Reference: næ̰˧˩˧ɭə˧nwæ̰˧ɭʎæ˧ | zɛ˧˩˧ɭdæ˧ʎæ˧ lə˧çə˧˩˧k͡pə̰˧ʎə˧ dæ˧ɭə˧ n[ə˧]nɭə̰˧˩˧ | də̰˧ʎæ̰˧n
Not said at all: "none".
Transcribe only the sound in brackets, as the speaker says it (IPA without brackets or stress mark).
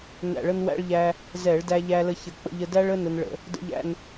ə˧